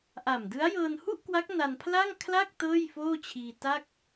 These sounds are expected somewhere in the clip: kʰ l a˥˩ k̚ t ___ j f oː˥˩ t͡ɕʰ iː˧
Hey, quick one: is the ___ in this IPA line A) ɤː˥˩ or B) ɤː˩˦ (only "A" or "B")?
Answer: A